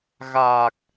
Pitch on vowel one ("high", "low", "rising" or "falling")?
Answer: low